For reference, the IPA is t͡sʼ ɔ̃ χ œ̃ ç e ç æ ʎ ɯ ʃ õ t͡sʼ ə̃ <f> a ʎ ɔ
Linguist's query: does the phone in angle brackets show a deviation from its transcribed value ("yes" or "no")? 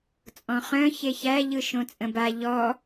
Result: yes